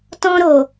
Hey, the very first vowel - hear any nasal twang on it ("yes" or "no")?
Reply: yes